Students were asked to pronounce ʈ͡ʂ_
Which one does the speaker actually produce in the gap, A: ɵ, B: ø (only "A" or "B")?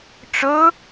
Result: A